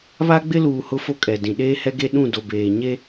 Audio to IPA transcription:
βa˦ɡ͡bɪ˦luː˨ hʊ˦fo˦ kʼɛ˨dĩ˨ ɗeː˦hɛ˦ɡe˦ ɗũ˦˨ do˨beː˨ ɲe˦

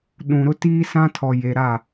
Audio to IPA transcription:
ɗũ˨ɾʊ˦tiː˦ sã˦tʰɔ˨je˨ ɾa˦˨

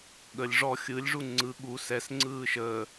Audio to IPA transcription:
ɠəlʲ ʐɔ xʲɯlʲʐu ŋ͡ǀɯ ɠu sɛsŋ͡ǀɯː ʃəː

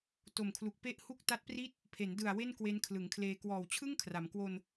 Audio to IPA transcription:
to˨˩mkʰlu˨˩k̚ pe˦˥ʔ hu˥˩k̚ ta˦˥t̚pri˥˩t̚ | pʰe˩˦ndɯ˨˩a̯ we˥˩nkwe˦˥nkʰlɯ˩˦ŋkʰleː˧ kwɔː˨˩wt͡ɕʰɯ˥˩ŋ kʰra˩˦m kwo˧n

